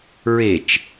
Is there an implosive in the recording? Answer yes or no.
no